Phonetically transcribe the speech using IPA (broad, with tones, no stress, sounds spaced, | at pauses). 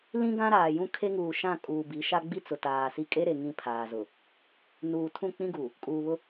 l ĩ˦ ɡ ã˦ ɾ aː˨ j ũ˦ kʰ e˦ ŋ uː˨ ʃ ã˦˨ kʼ uː˨ b i˨˦ ʃ a˦ ɡ͡b i˦ t͡s ʊ˨ t aː˨ s i˦ kʼ e˦ ɾ e˨ ŋ ĩ˦ pʰ aː˨ z ʊ˨ | n uː˨ tʰ ũ˦˨ k͡p ĩ˦ ɡ uː˨ | kʼ uː˨ β ʊ˦